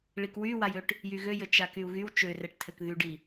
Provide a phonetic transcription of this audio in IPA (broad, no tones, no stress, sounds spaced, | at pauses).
ɭ i k w y w a j ø ʈ | j y ɣ ø j ɘ t͡ʃ a k y u̯ ɣ y w t͡ʃ ø r ɛ ʈ tʰ ɘ k ð y ɖ i